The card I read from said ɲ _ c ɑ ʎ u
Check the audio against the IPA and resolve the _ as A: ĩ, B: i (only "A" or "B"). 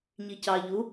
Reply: B